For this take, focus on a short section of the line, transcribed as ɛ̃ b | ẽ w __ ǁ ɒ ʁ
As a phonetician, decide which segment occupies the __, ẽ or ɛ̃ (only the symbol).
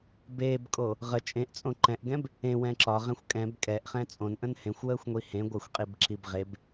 ɛ̃